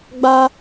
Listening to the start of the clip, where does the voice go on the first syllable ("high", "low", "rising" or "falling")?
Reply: high